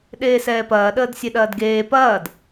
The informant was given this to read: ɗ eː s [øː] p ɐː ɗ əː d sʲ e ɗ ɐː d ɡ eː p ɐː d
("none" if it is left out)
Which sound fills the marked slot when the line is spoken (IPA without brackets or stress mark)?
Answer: ɛː